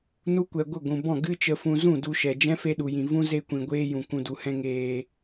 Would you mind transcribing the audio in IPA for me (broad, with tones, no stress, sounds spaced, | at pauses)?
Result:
n u˧ kʷ ɛ˨ ɡʷ ə˦˨ ɡʷ ũ˨ b ɔ̃˦˨ ɡ ɨ˦ t͡ʃ ə˧ f ũ˧ z ũ˦˨ d u˧ ʃ ɛ˨ d͡ʒ ɛ̃˦ f e˧ ɗ u˨ j ĩ˨ v ũ˦ z e˧ kʷ ĩ˨ ɡʷ eː˧ j ũ˨ k ũ˧ d u˧ h ɛ̃˦ ŋ eː˧